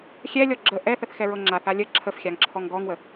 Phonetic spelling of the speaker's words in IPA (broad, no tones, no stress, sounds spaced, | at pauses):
xʲ ɛ lʲ ɔ ɡ͡ǁ ə ʔ ɛ θ ə θ x ɛ ɹ ɤ ŋ͡ǁ a θ a lʲ ə ǁʰ ə f xʲ a ŋ ǁʰ ɔ ŋ ɡ ɔ ŋ w ə